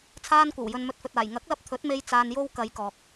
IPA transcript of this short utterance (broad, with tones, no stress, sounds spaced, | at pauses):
t͡sʰ aː˧ n kʷ ɐ˨˩ w j ɵ˨ n m ɵ˨ t̚ f ɵ˨ t̚ aː˨˩ j ŋ ɐ˨˥ k̚ l ɐ˧ p̚ t̪ʰ ɵ˨˥ t̚ m e˧ j t͡s aː˧ n j o˥ w k ɐ˨˧ j k ɔː˨ k̚